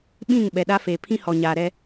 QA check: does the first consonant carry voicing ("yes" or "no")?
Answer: yes